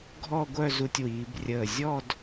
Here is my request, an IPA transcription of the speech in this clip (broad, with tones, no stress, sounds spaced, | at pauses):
ɡʱ ɔ˥˧ ɡʷ œ˥˧ z u˧ tʲ w iː˩˧ b rʲ əː˧˩ zʲ ɔ˥˧ d